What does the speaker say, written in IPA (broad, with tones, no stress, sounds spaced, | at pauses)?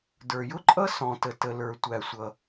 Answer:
d ə˞˩ j ʊ˥ ǃʼ ʌ˥ s ɔ̃˩ t ə˩ t ə˩ l ə˞˩ tʷ æ˩ sʷ ʌ˩